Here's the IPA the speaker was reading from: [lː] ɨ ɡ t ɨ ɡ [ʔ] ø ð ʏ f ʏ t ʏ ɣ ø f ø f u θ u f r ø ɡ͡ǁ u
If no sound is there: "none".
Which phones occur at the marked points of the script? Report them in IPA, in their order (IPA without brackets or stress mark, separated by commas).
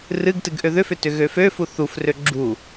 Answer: r, ʔ